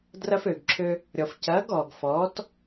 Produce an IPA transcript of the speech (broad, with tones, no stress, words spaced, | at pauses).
drɐ˧føː˨ɡǁʰø˧ | ɾʲɔ˨fcɐː˨˦ɡɔː˨ɡ fɔː˨˦t